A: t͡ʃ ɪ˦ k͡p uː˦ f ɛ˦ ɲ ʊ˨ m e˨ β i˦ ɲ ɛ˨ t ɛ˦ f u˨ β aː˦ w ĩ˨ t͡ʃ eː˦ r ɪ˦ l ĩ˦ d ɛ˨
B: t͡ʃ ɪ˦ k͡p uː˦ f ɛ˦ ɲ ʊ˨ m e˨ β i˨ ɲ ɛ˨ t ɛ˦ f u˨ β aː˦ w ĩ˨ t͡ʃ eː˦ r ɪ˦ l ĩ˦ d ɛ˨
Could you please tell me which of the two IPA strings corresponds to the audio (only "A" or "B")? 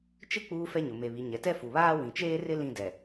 B